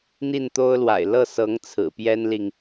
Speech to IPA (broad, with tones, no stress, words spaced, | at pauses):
n̪i˥˩nt̪o˥ʊ̯lwa̰˨˩ɪ̯ lɤ˥˩sɤ˧˥ŋ t͡sʰɹ̩˨˩pjɛ˥nli˨ŋ